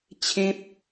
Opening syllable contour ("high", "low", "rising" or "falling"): high